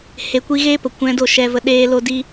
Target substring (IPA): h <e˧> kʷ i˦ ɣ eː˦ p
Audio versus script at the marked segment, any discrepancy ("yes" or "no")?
no